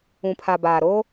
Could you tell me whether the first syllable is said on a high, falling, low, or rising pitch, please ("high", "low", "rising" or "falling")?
low